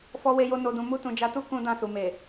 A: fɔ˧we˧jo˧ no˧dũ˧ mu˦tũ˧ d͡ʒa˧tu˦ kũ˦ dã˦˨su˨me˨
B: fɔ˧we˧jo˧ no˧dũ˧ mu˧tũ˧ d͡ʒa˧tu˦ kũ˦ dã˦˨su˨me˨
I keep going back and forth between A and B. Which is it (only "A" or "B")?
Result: A